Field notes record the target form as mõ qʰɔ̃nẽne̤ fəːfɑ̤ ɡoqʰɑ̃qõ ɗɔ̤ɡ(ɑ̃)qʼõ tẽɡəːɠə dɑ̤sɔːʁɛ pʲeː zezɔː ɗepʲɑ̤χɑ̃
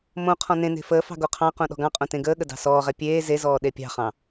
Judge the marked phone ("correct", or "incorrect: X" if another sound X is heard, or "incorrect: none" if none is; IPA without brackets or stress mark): correct